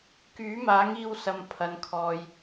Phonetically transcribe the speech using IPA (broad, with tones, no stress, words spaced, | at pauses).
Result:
kyː˨˥maː˨˥ŋiː˧w sɐ˨m pʰɐ˨˧nkʰɔː˨j